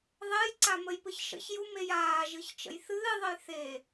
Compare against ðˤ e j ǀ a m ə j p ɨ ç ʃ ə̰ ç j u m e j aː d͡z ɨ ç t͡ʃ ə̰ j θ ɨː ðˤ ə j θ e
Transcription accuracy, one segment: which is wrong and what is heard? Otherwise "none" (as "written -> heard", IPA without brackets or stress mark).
d͡z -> ʒ